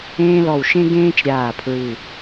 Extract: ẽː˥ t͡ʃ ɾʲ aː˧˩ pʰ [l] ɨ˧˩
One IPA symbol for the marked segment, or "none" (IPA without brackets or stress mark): ɹ